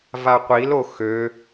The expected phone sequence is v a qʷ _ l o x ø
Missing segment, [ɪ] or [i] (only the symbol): i